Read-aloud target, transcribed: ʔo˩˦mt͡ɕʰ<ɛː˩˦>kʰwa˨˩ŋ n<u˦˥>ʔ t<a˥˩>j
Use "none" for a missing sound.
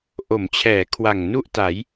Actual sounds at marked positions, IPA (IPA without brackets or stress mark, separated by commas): ɛː˩˦, u˥˩, a˩˦